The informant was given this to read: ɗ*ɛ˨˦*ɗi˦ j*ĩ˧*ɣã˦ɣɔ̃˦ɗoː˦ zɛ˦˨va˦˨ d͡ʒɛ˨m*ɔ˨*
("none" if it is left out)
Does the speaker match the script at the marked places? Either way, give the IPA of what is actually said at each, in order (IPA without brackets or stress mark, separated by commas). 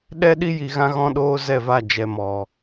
ɛ˦, i˧, ɔ˨